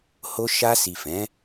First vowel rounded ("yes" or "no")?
yes